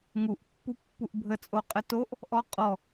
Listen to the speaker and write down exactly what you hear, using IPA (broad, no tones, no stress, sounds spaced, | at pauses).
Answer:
ŋ u ʔ pː u pː u ʔ bʱ ə t͡sʼ o qʼ ə t o ʔ | ʔ ɔ qʼ ɔ